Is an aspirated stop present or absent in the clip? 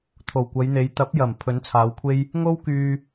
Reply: present